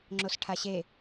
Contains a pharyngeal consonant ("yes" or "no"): no